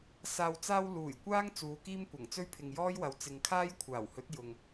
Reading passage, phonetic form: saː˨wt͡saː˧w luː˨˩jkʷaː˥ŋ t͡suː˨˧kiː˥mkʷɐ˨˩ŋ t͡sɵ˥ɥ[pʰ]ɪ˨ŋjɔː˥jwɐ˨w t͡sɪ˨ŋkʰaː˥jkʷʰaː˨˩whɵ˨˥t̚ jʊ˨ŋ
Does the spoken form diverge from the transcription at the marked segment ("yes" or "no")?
no